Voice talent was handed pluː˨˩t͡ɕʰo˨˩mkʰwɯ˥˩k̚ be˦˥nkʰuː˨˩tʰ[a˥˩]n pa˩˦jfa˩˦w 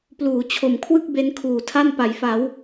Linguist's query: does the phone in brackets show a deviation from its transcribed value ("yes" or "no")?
no